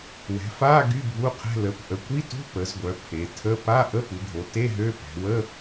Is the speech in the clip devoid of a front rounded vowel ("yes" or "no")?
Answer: no